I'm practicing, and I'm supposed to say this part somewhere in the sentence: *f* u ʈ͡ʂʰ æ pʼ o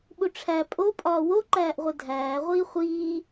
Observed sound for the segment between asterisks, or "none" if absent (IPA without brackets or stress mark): ɓ